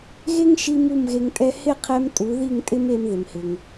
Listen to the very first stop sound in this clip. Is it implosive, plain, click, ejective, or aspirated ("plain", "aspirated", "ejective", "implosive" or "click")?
ejective